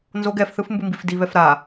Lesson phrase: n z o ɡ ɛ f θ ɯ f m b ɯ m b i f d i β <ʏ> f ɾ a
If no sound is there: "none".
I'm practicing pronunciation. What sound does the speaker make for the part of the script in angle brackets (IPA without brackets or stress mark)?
ɛ